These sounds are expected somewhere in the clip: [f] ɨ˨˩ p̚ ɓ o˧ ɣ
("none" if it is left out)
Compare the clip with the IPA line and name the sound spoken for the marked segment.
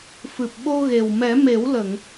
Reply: f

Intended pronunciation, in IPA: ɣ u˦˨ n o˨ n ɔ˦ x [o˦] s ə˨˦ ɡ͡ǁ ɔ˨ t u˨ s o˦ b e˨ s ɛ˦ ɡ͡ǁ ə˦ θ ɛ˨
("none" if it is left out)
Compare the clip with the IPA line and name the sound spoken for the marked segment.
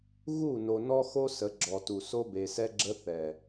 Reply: o˦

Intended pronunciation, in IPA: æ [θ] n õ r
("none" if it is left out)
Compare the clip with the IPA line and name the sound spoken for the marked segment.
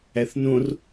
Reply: θ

